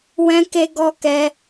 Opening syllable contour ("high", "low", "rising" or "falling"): high